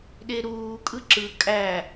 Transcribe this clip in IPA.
ɗeɾuːkʼɯ ǁɯ kʼæ

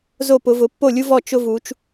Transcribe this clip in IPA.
zo˥˩pʊ˩˧vʊ˩˧ pːo˥˩lʲu˦vɔ˥˩ t͡ʃʊ˦vu˩˧t͡ʃ

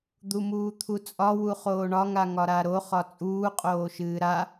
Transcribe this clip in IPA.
d̪umuːt̪ʰut͡sʼɒ wuχoːɳɒ ŋaŋɒɾaɾo χɒt͡sʼuː qʼoːʃɨːɾa

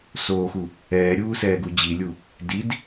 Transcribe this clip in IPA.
soːxu | ɛːɾʲuː sɛːɡud͡ʑilʲu | did

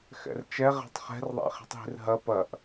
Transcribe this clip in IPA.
xɛ̰rt͡ʃɛ ʁɛ̤tˤχɛ̤rðˤɛ̰χi̤tˤ ɦi̤rɦɐ pɐʔ

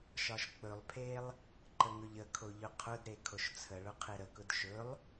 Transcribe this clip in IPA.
ʃɒʃk͡pɵlˠpʰelˠ | ǃəŋɵʎəkʰo ʎʊqʰʊdɾe kʰoʃt͡sʰəɭʊ qʰeɾəkʊd ʃɵlˠ

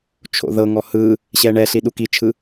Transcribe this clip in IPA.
t͡ʃʰo̰ðɤŋɔ hɯ | ɕɛɳɛɬi ɗukit͡ʃʰɯ

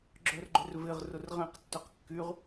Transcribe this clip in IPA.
ɡ͡ǁœrɡ͡ǃʏrvɪʁ rʊrʁẽq tːœqkːyʁ

